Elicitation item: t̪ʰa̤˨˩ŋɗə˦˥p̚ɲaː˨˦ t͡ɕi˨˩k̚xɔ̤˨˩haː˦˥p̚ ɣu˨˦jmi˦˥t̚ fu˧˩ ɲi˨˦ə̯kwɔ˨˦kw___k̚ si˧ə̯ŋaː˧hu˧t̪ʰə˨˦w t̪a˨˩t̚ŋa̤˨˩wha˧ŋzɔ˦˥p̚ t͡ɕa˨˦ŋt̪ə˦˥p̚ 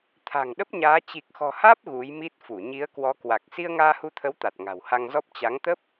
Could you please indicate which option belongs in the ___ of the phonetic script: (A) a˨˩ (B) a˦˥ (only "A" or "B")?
A